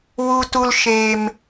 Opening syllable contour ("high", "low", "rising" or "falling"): low